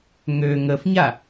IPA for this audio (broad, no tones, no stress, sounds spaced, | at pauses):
ŋ ø ŋ ə f ɲ a